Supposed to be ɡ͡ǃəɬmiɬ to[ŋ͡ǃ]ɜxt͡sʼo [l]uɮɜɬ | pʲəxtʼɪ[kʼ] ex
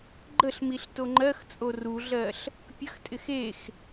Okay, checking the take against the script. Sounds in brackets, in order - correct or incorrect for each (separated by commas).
correct, incorrect, incorrect